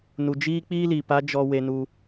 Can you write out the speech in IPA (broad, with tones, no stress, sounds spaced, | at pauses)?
n u˨ d͡ʒ iː˦ k͡p iː˦ l iː˨ p a˦ d͡ʒ ɔ˧ w e˧ n u˧